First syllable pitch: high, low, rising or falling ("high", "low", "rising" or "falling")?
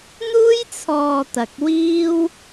high